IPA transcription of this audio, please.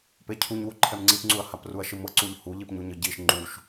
p e cʰ u ɲ w u ǃʰ ɛ m ŋ͡ǀ i p ŋ͡ǀ u ɐ̯ h a p r u ɐ̯ ʃ ɯ m ɤ ǀ u ʎ h u ʎ i p ɲ u ɲ ɯ ɟ i ʃ ŋ͡ǃ u ʃ

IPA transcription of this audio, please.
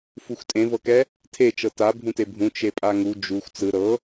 f u xʷ tʼ ẽ v ɤ k ɛ | tʰ e t͡ʃ ɤ t a bʱ ũ t e bʱ ũ t͡ʃ e pʼ a ŋ u d͡ʒ u xʷ t͡s ɯ ɾ ɤ

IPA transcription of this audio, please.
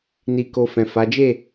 n i˧ k o˧ f ɛ̃˨ f a˨˦ d͡ʒ e˦˨

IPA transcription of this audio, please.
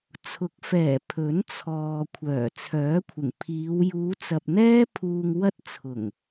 t͡sʰ ʊ˨˥ k̚ f ɛː˨˩ pʰ ɵ˨˥ n t͡sʰ ɔː˨ kʷʰ œː˨˩ t͡sʰ œː˨˥ kʷʰ ɪ˨˩ ŋ pʰ iː˨˧ w j uː˨˧ t͡s ɐ˨ p̚ n̪ ɛː˥ pʰ uː˧ ŋ w ɐ˥ t̚ t͡sʰ ʊ˨˩ ŋ

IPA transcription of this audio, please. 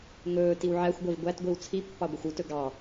ŋ ɵː t i w ʕ æ xʷ ɡʷ ɛ v ɡʷ æ t ɡʷ i w t͡sʰ i pː ɑ ɡʷ œ xʷ u t ɵ ɡ ɑ

